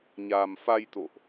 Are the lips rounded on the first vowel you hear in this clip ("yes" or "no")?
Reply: no